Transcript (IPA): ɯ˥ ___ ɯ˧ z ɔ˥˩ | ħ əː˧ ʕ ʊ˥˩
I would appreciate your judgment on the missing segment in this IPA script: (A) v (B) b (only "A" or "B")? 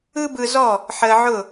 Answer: B